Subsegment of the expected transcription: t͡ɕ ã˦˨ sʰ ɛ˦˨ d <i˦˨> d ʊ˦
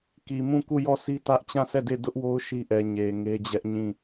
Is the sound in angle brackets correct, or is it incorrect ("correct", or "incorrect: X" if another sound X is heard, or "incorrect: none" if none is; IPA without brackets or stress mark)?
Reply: incorrect: e˦˨